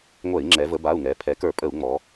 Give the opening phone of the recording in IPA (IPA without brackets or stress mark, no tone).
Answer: ŋʷ